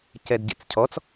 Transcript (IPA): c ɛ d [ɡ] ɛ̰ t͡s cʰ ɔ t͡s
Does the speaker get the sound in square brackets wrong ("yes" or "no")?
yes